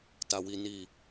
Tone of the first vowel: low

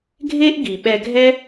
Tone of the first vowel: high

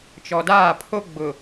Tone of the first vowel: low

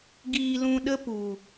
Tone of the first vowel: low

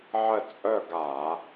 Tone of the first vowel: falling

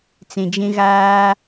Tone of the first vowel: low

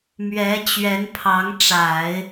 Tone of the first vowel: rising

